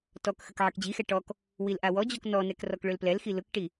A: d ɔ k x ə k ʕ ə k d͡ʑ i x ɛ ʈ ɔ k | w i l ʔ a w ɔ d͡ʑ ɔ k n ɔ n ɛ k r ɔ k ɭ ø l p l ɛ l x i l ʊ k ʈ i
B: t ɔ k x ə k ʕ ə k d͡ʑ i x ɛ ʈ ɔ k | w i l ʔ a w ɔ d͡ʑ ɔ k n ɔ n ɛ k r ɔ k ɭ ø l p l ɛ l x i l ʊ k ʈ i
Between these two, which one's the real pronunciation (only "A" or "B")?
B